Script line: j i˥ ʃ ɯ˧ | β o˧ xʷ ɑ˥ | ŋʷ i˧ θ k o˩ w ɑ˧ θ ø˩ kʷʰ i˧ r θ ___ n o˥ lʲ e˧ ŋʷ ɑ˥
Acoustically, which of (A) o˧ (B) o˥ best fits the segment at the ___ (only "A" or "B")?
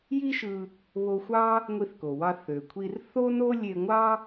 B